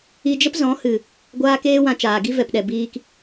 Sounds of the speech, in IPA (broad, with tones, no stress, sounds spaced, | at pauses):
i˧ d͡ʒ ə˦ p z ɔ̃˨˦ h ɨ˨ | ɡʷ aː˦ k eː˦ w ã˧ t͡ʃ aː˨ ɡ i˦ v ɛ˨ p ɗ ɛ˨ b iː˧ k